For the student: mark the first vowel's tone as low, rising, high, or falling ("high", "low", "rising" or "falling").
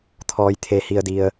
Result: low